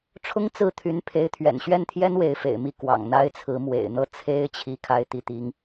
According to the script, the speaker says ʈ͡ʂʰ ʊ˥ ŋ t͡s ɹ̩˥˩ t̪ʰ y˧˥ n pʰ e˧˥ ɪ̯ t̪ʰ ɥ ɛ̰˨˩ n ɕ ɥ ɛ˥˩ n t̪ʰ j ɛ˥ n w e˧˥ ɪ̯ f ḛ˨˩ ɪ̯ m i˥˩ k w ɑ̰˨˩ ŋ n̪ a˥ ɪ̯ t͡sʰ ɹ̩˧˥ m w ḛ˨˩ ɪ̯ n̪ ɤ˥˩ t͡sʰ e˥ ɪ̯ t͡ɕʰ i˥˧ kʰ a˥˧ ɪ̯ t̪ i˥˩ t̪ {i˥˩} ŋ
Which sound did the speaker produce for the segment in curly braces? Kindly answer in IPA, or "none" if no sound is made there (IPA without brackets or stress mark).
i˥